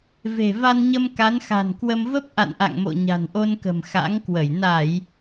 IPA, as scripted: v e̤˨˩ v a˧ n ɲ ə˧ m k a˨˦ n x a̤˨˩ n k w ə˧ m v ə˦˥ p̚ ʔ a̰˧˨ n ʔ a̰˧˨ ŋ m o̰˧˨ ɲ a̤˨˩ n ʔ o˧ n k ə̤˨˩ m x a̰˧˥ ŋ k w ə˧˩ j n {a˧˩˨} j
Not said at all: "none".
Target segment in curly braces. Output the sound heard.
a˧˩˨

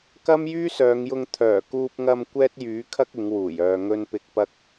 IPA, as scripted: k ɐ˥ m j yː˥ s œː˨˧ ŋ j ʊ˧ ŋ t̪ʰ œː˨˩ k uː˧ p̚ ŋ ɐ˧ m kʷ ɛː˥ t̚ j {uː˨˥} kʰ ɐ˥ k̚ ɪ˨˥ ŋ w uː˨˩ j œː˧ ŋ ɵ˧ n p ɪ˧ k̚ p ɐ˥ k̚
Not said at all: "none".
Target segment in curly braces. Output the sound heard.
yː˨˥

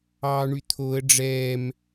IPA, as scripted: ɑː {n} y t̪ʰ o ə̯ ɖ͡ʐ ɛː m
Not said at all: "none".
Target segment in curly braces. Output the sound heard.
ɳ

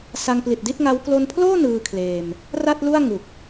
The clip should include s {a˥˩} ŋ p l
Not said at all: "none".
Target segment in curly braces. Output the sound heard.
a˧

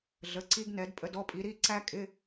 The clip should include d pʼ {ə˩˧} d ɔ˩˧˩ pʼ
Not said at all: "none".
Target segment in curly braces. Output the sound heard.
ə˩˧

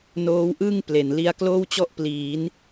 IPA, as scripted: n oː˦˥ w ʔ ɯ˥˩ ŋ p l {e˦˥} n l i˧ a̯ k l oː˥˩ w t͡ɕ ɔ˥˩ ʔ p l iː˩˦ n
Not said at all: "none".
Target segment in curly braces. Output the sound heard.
e˨˩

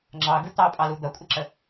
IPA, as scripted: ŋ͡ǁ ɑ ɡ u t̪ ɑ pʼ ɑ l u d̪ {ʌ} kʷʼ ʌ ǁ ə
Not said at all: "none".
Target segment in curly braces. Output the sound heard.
ʌ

